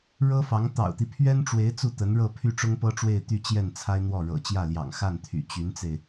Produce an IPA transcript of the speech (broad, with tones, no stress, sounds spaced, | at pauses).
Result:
ɻ ɤ˥ f ɑ˧˥ ŋ t̪ ɑ̰˨˩ ʊ̯ t̪ i˦ pʰ ɥ ɛ˥ n ʈ͡ʂ w e˧˥ ɪ̯ t͡s u˥˩ t̪ ə˧˥ n ɻ ɤ˥˧ pʰ y˥˩ ʈ͡ʂ ʊ˥ ŋ p ɤ˥ ʈ͡ʂ w e˥˧ ɪ̯ t̪ y˥˧ t͡ɕ j ɛ˥˩ n t͡sʰ a˥ ɪ̯ n̪ w ɔ˥˩ ɻ ɤ̰˨˩ t͡ɕ j ä˥˩ l j ɑ̰˨˩ ŋ x a˥˩ n t̪ʰ y̰˨˩ t͡ɕ y˧˥ n t͡s e˧ ɪ̯